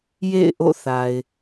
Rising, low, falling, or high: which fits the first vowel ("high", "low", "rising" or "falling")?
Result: falling